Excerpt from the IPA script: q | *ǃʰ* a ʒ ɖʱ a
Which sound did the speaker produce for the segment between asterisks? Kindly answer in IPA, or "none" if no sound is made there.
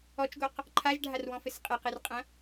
ǃʰ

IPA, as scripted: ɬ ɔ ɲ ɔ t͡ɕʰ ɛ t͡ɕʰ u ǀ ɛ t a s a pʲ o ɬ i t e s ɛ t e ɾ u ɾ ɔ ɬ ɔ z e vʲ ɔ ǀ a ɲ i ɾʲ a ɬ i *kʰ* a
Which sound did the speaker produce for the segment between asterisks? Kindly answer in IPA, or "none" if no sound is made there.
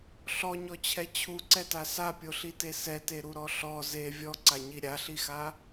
x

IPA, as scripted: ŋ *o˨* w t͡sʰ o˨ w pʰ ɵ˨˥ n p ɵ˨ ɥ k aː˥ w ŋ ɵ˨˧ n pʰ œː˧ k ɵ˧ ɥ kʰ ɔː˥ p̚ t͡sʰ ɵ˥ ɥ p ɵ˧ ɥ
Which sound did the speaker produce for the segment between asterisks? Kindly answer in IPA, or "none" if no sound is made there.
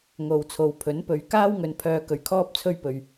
o˨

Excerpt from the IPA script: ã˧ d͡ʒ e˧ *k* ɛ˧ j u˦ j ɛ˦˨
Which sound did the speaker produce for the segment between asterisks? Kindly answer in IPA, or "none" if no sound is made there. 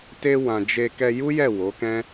k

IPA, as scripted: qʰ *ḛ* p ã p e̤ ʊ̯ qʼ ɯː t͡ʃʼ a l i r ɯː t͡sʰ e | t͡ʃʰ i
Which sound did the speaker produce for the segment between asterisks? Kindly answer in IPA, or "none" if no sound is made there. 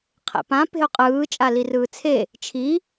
ḛ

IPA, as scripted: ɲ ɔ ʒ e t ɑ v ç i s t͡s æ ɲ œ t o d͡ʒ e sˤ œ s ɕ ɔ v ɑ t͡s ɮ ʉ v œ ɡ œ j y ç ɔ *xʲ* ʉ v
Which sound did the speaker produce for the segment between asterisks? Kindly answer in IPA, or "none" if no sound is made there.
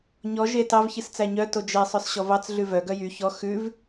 x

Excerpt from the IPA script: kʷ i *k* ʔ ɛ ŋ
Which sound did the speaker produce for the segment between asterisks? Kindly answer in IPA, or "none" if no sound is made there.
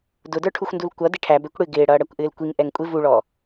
ŋ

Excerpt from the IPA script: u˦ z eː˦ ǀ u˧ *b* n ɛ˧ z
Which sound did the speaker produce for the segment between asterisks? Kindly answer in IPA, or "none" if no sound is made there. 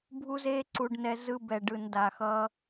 ɖ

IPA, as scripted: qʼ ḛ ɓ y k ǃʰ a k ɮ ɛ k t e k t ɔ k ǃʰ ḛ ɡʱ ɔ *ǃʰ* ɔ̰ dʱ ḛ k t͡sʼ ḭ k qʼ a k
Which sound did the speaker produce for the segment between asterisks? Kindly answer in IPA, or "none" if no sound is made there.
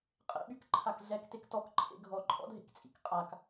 ǃʼ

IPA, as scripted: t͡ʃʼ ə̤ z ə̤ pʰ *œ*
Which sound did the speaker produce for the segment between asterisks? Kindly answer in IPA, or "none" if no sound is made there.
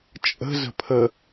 ə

